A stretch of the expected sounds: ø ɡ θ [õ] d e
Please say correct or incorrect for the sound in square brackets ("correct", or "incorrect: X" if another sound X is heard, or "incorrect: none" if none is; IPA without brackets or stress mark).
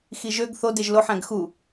incorrect: o